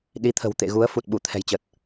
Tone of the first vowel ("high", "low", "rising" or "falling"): rising